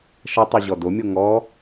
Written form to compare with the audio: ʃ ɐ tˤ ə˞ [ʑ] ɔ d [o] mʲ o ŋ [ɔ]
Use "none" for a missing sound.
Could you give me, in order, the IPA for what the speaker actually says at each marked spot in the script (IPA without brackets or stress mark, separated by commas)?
ʑ, o, ɔ